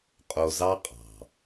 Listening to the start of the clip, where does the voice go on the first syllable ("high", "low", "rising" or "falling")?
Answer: low